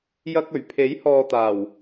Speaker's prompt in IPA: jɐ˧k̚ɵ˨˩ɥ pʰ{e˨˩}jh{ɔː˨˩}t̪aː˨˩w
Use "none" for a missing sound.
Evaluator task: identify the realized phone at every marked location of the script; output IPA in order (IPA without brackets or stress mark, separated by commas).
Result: e˨˥, ɔː˨